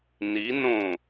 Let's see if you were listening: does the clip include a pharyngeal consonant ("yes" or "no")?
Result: no